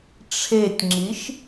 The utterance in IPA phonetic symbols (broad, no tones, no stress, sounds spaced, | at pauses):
ʈ͡ʂʰ e tʲ ŋ͡ǁ i ʃ